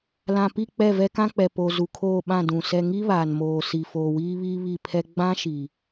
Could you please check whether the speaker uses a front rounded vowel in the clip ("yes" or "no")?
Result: no